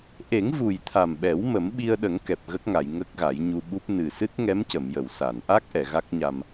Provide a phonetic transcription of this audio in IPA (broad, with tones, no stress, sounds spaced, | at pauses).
ʔ e˨˩˦ ŋ v u˨˩ j t̪ʰ a˨˩ m ɓ ɛ˨˩˦ w m ə˨˩˦ m ɓ i˧ ə̯ ɗ ə˨˩˦ ŋ k ɛ˨˩ p̚ ɣ ə˦˥ k̚ ŋ a˨˩˨ j ŋ ə˦˥ k̚ ɣ a˨˩˦ j ɲ u˧ ɓ u˦˥ p̚ n ɨ˨˩ s ɨ˦˥ t̚ ŋ ɛ˧˥ m c ə˨˩˨ m j ə˨˩˨ w s a˨˩˨ n ʔ a˦˥ k̚ ʔ ɛ˨˩˨ ɣ a˦˥ k̚ ɲ a˧ m